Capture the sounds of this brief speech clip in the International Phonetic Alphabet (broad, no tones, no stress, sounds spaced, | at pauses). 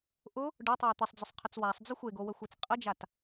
ʔ ʊ | ɖ ʊ tˤ ɘ w t̪ ɘ sˤ d͡z ʊ sˤ qʰ ə t͡s w a sˤ d͡z ʊ xʷ e ɡ o w ə xʷ e t͡s qʼ ə d͡ʒ a t